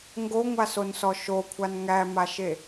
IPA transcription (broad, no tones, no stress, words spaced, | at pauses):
ŋɡoŋʷasonsɔ ʃokʷʰan ŋæmaʃe